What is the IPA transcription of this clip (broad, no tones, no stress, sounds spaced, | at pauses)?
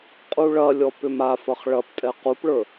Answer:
qʼ u ɭ ɐ lʲ ɔ p ʏ m a f ɐ χ ɭ ɐ p tʼ ɛ q u p ɭ ə˞